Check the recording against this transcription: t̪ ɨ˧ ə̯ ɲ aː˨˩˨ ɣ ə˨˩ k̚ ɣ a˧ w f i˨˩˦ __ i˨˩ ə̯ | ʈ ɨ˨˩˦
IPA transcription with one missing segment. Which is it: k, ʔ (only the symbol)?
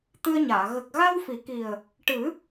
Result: k